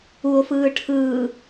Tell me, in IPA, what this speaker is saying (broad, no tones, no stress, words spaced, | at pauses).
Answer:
uo̯fɯː ʈʰɯː